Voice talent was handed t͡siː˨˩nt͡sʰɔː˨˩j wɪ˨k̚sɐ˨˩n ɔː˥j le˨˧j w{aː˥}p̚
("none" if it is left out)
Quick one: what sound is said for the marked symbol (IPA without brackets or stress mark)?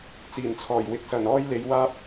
aː˥